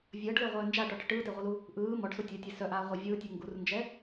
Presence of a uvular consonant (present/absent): present